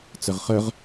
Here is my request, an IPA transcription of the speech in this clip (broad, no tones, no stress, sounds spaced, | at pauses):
t͡s œ ʁ χ œ ʁ